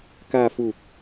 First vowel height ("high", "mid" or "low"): low